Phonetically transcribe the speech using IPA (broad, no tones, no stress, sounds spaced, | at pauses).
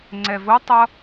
ŋ͡ǀ ɛ v o tˤ ʌ